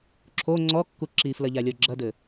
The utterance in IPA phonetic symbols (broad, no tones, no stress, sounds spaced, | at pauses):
ǁʰ o ŋ͡ǀ ɔ kː u ǁ i f l ɐ ʎ a lʲ ɔ ɡ͡ǁ ɐ d ɘ